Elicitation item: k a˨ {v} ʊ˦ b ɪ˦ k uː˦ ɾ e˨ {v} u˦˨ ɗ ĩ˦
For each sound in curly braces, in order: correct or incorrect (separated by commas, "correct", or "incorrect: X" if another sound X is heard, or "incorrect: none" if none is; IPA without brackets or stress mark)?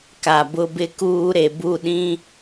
incorrect: b, incorrect: b